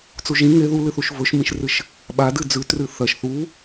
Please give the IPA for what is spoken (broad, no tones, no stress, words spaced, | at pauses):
t͡suʒĩ ŋe ðulɨθuʃ vɵʃmĩʃrɨʃ | ɓadɨ d͡zʉ trɨθɐʃ θu